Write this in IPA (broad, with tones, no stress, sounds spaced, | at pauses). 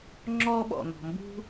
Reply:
ŋ͡ǁ ɔ˧ ɓ ɔ̰˩ n̪ ɔ̤˩ m b ṳ˧